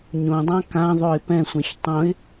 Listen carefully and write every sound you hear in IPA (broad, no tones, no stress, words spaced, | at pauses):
ɲõdˤã kã ðˤoɪ̯pɛ̃sʷɛ̃ç tˤõɪ̯